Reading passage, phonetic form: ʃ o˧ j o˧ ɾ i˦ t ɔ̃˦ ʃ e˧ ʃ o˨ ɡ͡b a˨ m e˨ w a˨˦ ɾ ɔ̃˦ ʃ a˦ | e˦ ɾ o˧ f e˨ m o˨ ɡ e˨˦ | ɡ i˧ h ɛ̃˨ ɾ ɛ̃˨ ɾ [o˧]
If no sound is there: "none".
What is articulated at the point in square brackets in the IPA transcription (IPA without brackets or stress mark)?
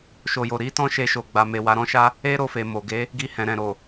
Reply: o˨